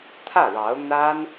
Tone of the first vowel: falling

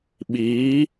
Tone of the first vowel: rising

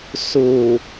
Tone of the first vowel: low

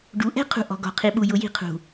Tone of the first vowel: rising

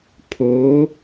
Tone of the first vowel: rising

